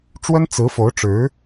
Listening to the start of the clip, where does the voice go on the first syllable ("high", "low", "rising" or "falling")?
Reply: high